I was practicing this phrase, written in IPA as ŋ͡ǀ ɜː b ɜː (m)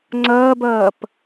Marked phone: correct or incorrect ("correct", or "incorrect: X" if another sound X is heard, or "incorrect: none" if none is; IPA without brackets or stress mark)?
incorrect: p